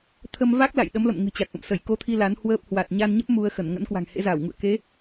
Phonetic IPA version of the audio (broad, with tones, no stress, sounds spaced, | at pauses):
t̪ʰ ə˧ m v a˦˥ k̚ l a̰˧˨ j ɗ ə˨˦ m l ə̰˧˨ m ŋ ɨ̤˨˩ t͡ɕ a˨˩ k̚ ʔ ə̰˧˨ m s ə˧˩ j k o˧ t̪ʰ i˧ l a˨˦ n h w əː˦˥ p̚ h w a˨˩ t̚ ɲ a˧ n ɲ ə˦˥ p̚ m u˧ ə̯ x ə˧˩ n ŋ ə̰˧˥ n k w a̤˨˩ ŋ h ḛ˧˥ z a˧˩ w ŋ ṵ˧˨ ə̯ k e˨˦